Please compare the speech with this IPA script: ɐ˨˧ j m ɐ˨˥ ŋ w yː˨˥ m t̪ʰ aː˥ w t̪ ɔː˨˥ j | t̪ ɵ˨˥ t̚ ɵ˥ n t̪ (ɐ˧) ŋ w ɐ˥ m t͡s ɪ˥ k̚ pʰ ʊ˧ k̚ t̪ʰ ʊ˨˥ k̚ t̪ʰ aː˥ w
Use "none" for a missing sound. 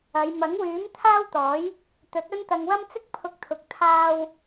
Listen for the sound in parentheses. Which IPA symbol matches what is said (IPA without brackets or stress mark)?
ɐ˧